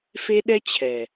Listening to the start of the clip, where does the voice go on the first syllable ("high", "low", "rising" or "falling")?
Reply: high